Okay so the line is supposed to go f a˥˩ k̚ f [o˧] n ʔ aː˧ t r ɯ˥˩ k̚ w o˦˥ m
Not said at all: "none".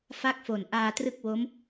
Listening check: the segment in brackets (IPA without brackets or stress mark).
o˨˩